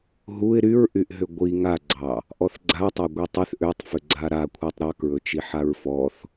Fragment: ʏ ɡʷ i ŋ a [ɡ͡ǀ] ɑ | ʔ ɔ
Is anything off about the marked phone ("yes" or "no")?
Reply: no